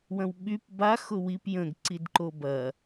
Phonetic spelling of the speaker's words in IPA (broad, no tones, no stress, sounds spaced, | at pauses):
w ɐ̃ w ɓ y p b a x ʊ w i p j ə̃ ɡ ǀ i d ǃ o b ɐ